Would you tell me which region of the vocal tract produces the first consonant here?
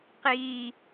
uvula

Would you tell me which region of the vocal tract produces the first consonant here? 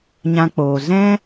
palate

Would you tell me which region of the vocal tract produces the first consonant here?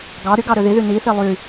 velum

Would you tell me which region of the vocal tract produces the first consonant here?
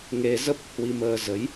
velum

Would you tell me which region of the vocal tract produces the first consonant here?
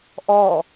throat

